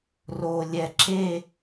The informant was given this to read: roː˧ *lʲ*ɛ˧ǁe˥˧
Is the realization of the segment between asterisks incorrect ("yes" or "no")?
no